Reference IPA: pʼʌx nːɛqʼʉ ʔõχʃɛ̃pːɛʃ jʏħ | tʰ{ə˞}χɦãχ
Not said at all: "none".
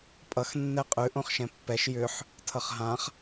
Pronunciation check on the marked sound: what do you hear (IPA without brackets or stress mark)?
ʌ